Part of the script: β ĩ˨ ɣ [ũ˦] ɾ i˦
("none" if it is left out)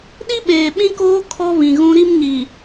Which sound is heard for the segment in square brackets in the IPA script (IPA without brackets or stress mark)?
ũ˦